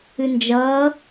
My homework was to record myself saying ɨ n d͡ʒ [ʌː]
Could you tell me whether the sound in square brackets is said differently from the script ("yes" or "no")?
no